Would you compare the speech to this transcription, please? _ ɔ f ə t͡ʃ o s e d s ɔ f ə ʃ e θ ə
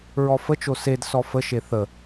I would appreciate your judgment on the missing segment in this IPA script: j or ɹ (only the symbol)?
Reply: ɹ